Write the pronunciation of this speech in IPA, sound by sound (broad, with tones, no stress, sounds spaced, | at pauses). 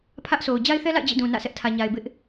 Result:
pʰ ä˦ ʔ sʰ o˨ ʊ̯ d͡ʑ a˦ ɪ̯ θ ɛ˦ l a̰˦˨ ɪ̯ d͡ʑ ḭ˦˨ d ũ˨ n ä̰˦˨ s ɛ˦ ʔ tʰ ä˨ ɲ a˨ ɪ̯ b ɪ˦ ʔ